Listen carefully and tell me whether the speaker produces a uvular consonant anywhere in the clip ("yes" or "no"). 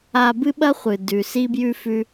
yes